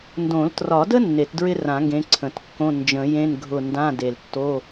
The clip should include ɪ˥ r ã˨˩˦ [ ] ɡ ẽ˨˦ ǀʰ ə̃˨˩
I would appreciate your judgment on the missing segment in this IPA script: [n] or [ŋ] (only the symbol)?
ŋ